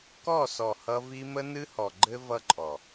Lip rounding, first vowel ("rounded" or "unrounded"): rounded